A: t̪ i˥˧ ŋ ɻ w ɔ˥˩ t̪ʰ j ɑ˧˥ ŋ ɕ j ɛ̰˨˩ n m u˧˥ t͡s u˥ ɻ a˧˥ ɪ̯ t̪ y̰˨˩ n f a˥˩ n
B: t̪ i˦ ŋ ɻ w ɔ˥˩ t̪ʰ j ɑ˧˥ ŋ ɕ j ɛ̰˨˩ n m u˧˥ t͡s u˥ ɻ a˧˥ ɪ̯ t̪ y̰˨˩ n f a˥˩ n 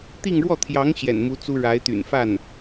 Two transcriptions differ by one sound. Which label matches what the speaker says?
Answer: A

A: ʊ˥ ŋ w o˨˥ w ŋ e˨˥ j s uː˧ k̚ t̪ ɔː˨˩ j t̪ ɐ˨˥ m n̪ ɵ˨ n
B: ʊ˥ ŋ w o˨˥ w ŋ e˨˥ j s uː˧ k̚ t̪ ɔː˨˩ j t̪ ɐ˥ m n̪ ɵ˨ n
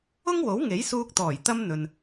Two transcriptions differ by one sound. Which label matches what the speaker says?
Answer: B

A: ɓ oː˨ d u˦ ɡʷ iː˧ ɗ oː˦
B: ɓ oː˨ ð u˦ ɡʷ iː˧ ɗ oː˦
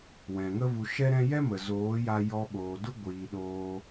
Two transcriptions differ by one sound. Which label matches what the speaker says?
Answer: A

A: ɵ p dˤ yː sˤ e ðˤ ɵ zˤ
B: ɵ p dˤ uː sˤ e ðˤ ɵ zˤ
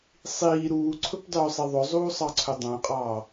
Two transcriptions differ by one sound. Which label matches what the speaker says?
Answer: A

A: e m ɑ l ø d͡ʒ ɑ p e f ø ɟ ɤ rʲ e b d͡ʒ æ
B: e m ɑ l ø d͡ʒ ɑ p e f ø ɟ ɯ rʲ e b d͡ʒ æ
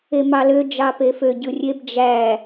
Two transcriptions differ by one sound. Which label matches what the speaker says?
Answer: B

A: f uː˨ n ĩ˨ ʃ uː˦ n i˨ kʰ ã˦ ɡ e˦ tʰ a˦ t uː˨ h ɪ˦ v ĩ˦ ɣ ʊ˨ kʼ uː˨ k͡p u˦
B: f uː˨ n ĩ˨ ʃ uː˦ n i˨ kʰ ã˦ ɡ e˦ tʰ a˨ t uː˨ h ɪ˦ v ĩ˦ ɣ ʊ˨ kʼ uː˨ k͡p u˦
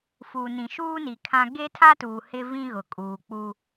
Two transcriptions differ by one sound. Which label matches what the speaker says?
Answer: A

